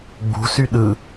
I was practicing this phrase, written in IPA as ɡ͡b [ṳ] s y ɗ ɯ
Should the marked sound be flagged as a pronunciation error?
no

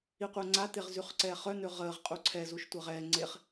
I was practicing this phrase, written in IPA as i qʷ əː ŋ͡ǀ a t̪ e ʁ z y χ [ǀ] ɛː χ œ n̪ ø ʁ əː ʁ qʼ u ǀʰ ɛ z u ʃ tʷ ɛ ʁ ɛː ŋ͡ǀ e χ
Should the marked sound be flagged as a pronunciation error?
no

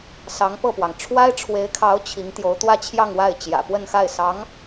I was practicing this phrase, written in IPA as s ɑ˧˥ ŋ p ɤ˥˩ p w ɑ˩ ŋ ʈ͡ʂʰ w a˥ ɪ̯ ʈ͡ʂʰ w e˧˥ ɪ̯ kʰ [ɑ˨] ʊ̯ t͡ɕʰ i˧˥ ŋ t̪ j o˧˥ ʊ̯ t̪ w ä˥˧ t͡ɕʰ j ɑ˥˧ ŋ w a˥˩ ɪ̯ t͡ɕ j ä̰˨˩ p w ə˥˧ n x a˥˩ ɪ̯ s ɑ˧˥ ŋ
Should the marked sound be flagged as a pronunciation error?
yes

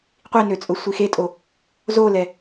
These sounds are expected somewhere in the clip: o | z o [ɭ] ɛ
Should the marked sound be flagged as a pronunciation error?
yes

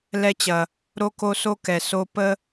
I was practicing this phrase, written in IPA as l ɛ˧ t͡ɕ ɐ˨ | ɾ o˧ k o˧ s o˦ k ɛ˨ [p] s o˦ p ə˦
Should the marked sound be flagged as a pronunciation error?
yes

